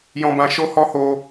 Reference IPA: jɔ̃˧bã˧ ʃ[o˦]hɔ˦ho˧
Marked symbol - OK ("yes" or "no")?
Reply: yes